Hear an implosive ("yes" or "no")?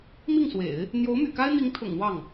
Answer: no